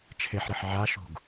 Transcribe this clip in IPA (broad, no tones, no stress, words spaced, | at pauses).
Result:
t͡ʃʰeħɾɘħ ʕaʃṳɡ